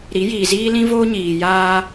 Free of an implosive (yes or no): yes